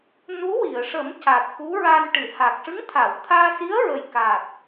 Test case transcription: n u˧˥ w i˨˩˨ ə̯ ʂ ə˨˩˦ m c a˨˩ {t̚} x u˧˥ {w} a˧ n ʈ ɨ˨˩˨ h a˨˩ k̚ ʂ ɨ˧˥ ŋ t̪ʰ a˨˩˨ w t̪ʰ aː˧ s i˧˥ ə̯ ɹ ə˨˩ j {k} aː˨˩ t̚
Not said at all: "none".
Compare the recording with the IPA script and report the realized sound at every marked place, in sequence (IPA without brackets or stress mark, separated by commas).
t̚, ɹ, k